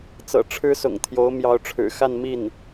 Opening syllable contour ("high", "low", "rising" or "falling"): low